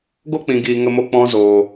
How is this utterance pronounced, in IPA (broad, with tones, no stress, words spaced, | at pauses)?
ɡo˦k͡pĩ˨ɡiː˨ ŋə˧mo˧ k͡pɔ̃˦ zoː˨